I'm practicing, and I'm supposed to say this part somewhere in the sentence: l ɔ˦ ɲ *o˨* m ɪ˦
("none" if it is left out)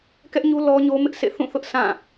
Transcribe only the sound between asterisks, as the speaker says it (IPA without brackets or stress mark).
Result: o˦